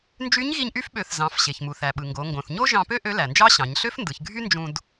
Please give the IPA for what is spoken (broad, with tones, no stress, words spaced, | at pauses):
nd͡ʒy˧˥ɲɣi˧ɲʔy˧˥fɓø˩˧θ zɑ̃˩˧fɕe˩çmu˩ θæ˩ɓɯ˩ŋɡo˩˧ ŋɡõ˩θɲo˥ʒɑ̃˧pø˥ ʔø˧˥læ˩nd͡ʒɑ˥ɕɑ̃˩˧ɲ ɬø˥fndɯ˩˧çɡʱy˥ nd͡ʒũ˧d